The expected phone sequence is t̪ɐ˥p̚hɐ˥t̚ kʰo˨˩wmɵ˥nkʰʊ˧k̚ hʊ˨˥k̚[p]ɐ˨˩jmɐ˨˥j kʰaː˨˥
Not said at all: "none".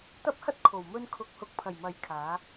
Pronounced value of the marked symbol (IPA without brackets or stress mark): pʰ